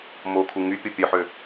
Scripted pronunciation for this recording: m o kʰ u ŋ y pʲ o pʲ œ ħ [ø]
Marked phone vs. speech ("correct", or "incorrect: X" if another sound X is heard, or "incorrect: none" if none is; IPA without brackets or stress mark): correct